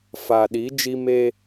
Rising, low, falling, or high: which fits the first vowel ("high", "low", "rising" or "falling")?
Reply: low